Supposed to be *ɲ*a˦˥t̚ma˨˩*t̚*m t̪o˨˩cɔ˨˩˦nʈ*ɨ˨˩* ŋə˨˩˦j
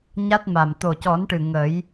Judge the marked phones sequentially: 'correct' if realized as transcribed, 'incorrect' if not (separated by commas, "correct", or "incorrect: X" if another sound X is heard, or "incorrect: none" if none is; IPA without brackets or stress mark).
correct, incorrect: none, correct